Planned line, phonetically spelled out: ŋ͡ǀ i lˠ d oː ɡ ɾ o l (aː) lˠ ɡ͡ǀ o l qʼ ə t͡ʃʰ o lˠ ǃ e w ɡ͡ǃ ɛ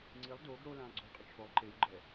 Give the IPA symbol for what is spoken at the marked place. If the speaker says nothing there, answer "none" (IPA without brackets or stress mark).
ãː